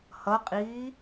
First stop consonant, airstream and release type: ejective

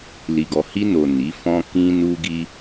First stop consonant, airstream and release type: plain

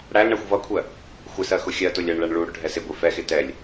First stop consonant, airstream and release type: aspirated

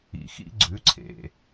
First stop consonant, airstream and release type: click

